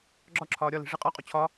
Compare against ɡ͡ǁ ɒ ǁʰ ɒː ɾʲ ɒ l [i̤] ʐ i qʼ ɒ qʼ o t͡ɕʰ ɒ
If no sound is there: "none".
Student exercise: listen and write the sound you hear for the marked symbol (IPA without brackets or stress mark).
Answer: i̤